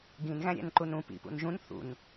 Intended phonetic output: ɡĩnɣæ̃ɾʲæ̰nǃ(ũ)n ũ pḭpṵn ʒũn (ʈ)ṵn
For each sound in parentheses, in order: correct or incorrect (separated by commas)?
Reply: incorrect, incorrect